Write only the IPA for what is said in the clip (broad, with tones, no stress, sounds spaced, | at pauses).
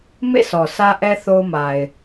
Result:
m ḛ˦˨ s ɔ˨ s ä˦ ʔ ɛ˦ θ o˦ ʊ̯ m a˨ ɪ̯